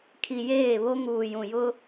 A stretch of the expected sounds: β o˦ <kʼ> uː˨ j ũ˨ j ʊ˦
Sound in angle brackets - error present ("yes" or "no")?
yes